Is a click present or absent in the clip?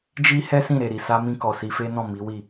absent